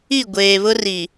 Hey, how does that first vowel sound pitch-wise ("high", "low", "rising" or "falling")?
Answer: falling